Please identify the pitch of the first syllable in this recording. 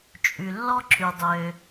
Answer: low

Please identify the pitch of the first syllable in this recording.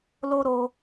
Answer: high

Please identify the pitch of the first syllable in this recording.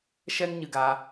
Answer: high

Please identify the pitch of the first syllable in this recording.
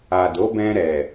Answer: low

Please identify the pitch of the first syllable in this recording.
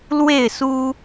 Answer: falling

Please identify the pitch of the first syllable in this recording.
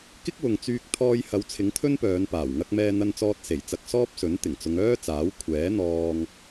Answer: high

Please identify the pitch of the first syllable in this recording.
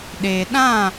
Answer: low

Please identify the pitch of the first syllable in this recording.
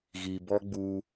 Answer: low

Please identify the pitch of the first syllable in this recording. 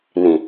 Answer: low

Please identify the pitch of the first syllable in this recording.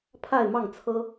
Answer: falling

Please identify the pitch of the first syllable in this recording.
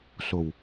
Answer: low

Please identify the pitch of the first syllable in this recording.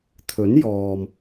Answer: rising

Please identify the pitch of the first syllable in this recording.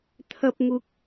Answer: high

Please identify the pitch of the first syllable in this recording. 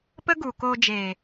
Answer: high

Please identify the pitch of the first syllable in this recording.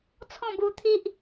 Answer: falling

